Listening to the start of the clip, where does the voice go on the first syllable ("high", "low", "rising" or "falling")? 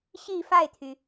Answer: falling